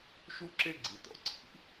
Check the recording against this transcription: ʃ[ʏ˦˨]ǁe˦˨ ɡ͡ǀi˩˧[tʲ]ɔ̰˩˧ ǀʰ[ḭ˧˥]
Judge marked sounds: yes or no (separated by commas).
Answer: no, no, yes